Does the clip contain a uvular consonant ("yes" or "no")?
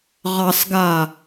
yes